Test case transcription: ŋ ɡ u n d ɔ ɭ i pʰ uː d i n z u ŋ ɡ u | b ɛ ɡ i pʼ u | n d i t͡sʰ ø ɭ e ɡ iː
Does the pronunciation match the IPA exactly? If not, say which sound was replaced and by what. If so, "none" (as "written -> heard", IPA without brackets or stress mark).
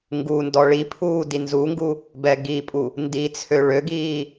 e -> ø